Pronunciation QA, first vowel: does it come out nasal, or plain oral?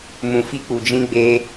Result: nasal